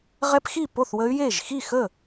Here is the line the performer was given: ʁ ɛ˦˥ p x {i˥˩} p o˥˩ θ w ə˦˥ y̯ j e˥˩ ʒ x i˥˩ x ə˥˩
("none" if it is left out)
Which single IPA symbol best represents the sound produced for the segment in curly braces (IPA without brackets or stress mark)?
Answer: i˥˩